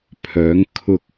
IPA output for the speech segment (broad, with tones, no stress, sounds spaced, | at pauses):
pʰ œː˨˥ ŋ kʰ ʊ˧ k̚